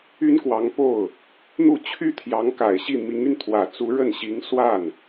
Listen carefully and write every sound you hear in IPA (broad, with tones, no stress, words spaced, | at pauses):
y˥nkwɑ˧˥ŋpo˥˩ʊ̯ | n̪u˥˩t͡ɕʰy˥ t̪ʰjɑ˧˥ŋka˨˩ɪ̯ɕi˥˩ mi˧˥ŋy˧n t̪ʰwä˨˩t͡su˧˥ɻə˥˩nɕi˧˥ŋ swa˥˩n